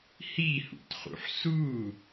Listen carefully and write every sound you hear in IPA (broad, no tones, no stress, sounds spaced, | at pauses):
h i h ṵ t χ ṵ ħ s u